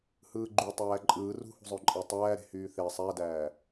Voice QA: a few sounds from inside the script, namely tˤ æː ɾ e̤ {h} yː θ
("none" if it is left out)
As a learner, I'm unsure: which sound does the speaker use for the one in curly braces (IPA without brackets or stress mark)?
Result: h